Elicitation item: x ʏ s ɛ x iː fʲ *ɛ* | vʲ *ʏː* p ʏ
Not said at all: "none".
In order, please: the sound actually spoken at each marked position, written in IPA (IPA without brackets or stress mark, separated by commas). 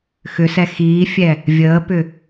ɛ, əː